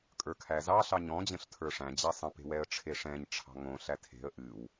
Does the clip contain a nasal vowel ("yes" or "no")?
yes